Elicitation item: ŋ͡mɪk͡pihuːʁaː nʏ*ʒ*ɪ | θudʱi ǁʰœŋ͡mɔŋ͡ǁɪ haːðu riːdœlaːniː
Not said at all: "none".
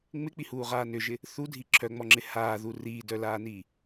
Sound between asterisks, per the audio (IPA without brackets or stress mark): ʒ